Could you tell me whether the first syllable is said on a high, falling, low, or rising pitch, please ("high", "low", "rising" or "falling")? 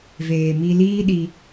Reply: low